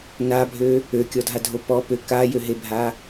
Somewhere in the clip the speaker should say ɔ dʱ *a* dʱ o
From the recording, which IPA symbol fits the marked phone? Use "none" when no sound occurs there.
a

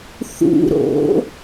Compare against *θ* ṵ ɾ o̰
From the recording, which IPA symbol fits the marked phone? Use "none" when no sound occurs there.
θ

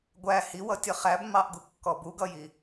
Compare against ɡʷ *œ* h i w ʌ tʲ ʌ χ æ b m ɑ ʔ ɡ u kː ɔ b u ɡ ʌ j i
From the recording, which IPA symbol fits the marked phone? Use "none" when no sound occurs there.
æ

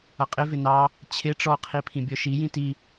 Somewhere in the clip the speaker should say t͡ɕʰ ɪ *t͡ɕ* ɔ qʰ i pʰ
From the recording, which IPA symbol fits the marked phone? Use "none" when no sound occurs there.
ʈ͡ʂ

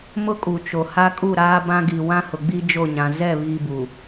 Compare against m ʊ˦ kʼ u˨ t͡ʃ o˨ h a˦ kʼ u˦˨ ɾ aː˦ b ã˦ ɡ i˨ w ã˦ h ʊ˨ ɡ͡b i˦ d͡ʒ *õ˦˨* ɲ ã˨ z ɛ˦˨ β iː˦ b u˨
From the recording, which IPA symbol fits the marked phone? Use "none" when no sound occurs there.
o˦˨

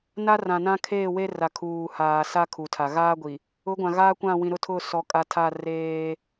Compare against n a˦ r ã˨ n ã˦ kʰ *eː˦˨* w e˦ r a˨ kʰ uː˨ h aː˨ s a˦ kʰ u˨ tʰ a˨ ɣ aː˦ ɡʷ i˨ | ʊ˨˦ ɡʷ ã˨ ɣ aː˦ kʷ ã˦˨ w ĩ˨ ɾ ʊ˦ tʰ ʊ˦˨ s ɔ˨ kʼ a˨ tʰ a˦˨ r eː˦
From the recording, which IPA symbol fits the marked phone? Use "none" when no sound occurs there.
eː˦˨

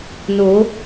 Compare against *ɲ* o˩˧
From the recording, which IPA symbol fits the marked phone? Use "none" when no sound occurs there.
n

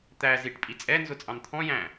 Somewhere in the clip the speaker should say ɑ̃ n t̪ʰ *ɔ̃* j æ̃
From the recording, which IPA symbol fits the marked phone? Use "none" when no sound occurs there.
ɔ̃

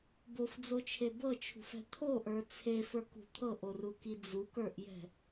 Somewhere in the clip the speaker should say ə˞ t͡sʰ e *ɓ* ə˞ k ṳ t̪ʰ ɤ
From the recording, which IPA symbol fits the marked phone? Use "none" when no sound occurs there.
f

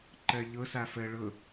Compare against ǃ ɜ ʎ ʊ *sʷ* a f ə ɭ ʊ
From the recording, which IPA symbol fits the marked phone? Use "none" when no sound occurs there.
s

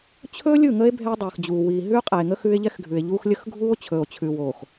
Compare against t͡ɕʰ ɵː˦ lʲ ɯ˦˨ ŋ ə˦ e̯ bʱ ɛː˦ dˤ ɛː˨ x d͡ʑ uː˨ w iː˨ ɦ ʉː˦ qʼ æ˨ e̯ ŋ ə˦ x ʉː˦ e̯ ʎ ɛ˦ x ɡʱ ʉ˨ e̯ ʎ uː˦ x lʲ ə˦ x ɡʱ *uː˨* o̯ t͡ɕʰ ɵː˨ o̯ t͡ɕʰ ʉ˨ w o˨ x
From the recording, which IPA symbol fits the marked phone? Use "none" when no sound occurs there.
uː˦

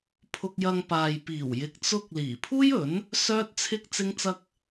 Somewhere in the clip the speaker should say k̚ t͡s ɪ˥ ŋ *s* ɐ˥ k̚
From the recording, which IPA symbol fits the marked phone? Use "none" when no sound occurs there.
t͡s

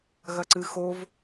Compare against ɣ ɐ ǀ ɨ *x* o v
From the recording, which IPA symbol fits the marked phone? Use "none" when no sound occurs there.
x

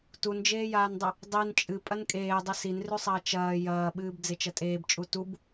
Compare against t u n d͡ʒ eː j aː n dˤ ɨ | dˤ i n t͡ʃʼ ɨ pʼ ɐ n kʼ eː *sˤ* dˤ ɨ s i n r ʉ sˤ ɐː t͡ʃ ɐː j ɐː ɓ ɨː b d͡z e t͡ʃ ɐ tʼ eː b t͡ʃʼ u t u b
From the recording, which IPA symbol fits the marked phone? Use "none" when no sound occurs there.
none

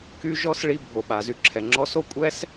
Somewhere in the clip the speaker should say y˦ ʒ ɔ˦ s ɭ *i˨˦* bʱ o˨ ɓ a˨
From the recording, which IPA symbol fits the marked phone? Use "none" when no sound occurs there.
i˧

